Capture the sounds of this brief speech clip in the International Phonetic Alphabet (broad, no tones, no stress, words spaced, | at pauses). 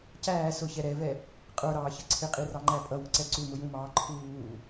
cæː sʊçɛ ɾɛvɛ | qʼə˞ɾɑːçə ǀʰɪqʼirɑŋ͡ǃæ pʼʌwʊǀɛ ǀumʊjũmɑː ǃʰuː